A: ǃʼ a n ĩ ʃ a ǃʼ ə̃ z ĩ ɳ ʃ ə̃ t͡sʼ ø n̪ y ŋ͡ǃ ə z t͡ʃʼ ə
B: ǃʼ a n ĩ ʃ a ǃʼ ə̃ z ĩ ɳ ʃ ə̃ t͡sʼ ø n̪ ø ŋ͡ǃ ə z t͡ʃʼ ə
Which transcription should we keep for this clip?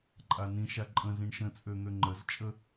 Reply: B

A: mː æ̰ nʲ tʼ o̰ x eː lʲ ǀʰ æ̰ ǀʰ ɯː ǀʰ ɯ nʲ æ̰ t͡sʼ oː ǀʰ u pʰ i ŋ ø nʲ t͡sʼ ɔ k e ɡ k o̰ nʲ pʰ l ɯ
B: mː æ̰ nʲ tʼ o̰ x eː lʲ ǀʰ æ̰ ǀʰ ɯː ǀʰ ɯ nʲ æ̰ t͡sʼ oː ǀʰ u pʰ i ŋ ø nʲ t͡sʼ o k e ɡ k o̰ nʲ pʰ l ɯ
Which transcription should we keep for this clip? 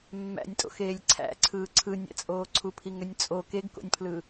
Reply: B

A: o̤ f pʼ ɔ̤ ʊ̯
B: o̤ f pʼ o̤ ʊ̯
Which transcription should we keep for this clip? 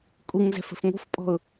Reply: A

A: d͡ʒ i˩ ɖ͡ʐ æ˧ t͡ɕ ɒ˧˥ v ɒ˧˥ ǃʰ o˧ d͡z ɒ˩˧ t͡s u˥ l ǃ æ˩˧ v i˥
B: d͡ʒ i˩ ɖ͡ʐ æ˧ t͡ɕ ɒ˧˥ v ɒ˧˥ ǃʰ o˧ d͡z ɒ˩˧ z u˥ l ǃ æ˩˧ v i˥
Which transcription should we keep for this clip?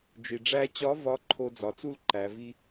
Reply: A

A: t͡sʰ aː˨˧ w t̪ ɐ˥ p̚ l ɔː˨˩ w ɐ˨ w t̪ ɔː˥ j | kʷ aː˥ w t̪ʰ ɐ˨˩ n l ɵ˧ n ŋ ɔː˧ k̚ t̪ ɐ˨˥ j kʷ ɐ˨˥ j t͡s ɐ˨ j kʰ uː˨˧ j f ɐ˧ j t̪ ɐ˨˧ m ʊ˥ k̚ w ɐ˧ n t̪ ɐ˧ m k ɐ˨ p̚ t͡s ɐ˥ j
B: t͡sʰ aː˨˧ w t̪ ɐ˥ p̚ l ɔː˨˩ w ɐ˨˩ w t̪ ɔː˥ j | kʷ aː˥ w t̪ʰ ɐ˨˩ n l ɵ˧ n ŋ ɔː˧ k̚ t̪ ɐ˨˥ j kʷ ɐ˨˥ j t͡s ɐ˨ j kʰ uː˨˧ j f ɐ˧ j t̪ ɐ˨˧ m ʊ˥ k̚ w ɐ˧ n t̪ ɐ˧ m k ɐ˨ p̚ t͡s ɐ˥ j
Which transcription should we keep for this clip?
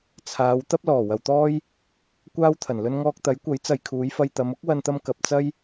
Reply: A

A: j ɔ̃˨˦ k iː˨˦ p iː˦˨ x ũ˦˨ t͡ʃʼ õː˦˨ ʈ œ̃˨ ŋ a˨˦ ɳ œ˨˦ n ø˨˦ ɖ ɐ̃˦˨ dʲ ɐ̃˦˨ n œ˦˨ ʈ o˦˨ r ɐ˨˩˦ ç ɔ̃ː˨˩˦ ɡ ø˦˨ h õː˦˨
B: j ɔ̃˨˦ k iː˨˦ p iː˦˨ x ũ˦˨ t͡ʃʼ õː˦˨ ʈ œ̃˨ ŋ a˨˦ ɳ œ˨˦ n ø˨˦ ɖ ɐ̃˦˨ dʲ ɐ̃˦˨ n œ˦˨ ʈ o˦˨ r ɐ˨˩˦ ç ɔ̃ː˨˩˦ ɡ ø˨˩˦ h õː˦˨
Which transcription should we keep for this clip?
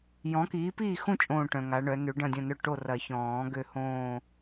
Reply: A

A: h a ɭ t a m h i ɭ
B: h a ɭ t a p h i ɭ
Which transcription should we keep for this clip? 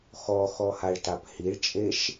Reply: B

